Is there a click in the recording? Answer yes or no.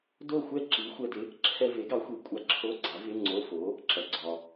yes